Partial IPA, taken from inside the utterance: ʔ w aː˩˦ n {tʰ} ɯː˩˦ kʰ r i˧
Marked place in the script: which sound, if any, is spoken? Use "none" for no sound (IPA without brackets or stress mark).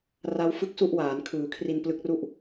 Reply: kʰ